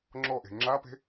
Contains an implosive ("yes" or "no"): no